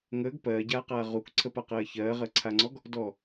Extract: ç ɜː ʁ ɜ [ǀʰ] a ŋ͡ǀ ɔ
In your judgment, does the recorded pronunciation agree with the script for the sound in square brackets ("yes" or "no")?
yes